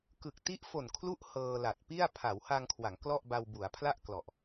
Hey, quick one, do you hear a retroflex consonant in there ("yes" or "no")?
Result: no